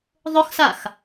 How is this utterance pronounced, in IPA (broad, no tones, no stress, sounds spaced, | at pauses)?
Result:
ðˤ ʊ x s a x